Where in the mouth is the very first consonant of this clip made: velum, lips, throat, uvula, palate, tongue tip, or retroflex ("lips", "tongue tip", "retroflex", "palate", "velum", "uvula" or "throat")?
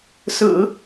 tongue tip